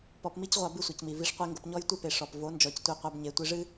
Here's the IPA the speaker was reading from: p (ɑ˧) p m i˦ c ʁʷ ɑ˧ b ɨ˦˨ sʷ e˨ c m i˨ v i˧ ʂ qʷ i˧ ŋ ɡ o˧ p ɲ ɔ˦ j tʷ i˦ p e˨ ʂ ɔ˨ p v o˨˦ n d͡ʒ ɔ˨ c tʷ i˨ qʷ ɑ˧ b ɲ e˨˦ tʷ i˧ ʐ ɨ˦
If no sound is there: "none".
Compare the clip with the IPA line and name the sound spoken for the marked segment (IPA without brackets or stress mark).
ɔ˧